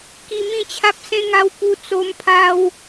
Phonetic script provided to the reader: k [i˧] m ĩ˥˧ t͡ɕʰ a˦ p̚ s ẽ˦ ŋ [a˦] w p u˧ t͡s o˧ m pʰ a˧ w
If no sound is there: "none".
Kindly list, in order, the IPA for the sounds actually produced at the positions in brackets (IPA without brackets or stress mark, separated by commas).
i˧, a˦